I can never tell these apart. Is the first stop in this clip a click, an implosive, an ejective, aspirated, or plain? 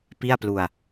plain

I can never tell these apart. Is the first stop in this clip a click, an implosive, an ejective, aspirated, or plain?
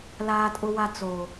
ejective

